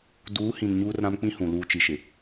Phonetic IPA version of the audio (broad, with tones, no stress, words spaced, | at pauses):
duː˨˦hĩ˨n ɲuː˦rɾã˦mk͡pĩ˦hũ˨ luː˨t͡ʃi˨ʃɪ˨